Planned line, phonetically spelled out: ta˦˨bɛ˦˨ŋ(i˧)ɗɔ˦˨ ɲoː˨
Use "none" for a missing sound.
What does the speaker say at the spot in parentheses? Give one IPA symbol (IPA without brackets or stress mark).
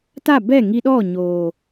i˧